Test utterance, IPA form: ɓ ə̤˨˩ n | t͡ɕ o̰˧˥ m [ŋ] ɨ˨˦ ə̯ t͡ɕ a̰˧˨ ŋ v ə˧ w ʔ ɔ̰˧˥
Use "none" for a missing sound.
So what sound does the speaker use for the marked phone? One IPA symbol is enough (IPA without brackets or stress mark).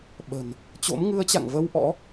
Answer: ŋ